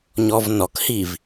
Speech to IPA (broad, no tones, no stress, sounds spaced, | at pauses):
ɲ ɔ v n ɔ k h i v